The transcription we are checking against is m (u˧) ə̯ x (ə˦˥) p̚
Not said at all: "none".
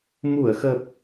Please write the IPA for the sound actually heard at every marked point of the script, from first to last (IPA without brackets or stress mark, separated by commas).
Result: u˧˩, ə˨˩